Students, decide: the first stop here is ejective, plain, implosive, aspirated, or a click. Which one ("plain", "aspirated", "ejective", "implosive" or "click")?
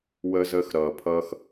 aspirated